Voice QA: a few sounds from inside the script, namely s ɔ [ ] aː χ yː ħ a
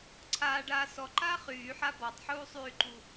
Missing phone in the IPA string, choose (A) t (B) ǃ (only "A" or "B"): B